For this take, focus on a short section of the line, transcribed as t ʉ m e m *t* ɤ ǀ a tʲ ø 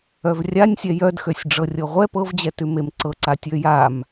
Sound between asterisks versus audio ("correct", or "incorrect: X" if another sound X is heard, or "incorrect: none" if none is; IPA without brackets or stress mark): incorrect: ǀ